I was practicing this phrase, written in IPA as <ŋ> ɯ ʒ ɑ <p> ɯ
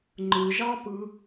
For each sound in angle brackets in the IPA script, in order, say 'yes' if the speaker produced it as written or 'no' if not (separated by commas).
no, yes